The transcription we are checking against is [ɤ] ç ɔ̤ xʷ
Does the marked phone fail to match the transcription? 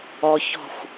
yes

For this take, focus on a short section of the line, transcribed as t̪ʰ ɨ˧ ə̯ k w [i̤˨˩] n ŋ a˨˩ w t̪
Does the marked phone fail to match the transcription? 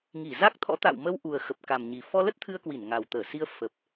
yes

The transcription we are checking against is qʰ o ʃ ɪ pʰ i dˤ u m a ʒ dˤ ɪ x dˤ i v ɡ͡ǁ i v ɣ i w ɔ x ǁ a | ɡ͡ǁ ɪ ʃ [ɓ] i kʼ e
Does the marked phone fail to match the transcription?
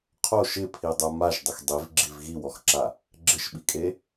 no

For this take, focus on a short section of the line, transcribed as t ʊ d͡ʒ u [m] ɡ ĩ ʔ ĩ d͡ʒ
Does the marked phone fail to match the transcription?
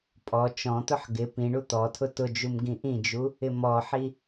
no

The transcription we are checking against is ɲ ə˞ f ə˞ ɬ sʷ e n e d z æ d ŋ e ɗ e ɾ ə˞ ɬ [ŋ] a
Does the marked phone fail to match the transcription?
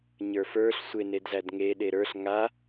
no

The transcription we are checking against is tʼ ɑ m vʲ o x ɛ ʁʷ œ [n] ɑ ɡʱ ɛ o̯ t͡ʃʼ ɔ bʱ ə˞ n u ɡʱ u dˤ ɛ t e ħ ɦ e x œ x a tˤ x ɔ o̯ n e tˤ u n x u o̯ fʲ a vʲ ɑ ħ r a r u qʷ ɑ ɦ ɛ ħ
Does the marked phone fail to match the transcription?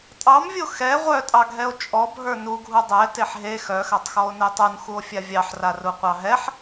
yes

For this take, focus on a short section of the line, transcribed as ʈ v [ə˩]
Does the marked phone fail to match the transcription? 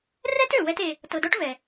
yes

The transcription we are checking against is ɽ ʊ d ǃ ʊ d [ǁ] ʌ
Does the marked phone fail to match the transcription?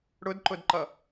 yes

